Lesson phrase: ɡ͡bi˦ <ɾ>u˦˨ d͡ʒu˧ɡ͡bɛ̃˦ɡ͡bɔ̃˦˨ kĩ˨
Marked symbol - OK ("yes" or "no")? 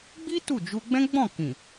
no